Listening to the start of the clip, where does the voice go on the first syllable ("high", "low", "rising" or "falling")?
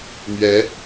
rising